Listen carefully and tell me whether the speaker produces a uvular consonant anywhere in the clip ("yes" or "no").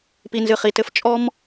yes